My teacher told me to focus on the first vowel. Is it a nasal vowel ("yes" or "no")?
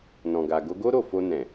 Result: yes